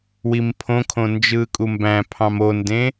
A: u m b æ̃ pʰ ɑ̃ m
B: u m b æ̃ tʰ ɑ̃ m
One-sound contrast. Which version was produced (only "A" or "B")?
A